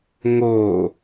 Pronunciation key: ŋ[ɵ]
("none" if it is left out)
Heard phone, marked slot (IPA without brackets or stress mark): o